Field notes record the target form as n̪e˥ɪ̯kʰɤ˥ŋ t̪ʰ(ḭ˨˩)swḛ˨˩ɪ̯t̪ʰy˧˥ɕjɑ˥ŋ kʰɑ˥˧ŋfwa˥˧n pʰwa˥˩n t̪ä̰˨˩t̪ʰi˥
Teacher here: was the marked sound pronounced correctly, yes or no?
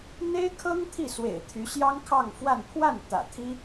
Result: no